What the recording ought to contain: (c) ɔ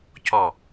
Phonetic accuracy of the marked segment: correct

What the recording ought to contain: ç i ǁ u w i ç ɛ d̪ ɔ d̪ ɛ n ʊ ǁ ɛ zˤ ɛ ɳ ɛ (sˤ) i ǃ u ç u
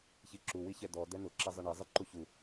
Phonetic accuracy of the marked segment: incorrect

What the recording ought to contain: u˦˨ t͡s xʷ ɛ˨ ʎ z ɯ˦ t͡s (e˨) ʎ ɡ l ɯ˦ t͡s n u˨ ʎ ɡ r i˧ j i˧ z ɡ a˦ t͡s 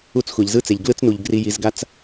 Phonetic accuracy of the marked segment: correct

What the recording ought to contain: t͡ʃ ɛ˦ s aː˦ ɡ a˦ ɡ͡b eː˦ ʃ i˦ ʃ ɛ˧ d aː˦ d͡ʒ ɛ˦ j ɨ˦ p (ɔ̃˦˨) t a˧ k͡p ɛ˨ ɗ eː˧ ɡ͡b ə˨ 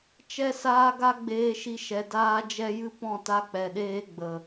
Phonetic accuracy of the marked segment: correct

